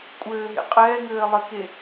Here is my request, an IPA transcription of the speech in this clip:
kʷʼ ɘː ɦ ḛ qʼ ɛː ŋ ɘː lˠ ɘ k e

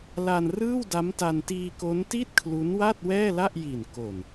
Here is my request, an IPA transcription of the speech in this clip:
l a˧ n r ɯː˥˩ w d a˦˥ m t a˧ n t iː˧ k o˦˥ n t i˥˩ t̚ kʰ l u˦˥ n w a˥˩ t̚ w ɛː˥˩ l a˥˩ ʔ j i˨˩ n k o˨˩ n

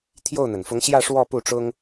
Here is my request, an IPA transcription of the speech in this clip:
t̪ʰ j o˥˩ ʊ̯ n̪ ə˩ n f ʊ˧˥ ŋ ɕ j ä˥˧ ʂ w ɔ˥˧ p u˥˩ ʈ͡ʂ ʊ˥ ŋ

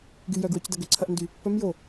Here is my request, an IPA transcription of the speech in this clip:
ɡ y j œ ɡ w œ c d ɐ ɡ ʏ ǀʰ ɐ ʔ n d y | p œ m j o

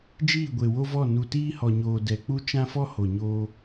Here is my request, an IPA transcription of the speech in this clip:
d͡ʒ iː˦˨ ɡʷ e˨ w o˦ v ɔ˦˨ n u˨ t iː˦ h ɔ˨ ɲ oː˨ d ɛ˨ k͡p u˦ t͡ʃ ã˦ f ɔ˦ h o˨ ɲ oː˦

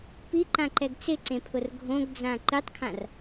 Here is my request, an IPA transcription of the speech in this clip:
p i ǃ ã ǃ ɛ ɡ t͡s ɪ ǀ ẽ pʰ ʊ r ɡʱ õ ɡ d͡z ã ǃ i tˤ kʰ ã r

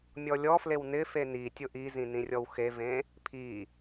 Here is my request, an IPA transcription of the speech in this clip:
mʲ ɔ lʲ ɔ f l e w n ɪ f e n i tʲ ʊ ʔ i z ĩ n ĩ rʲ ɔ w x e v ẽ | pʰ i

